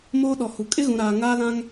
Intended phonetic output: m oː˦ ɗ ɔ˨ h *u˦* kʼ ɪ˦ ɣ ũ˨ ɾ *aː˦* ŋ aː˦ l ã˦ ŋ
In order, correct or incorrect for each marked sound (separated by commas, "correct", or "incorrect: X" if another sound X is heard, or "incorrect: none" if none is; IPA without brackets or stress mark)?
incorrect: u˨, incorrect: aː˨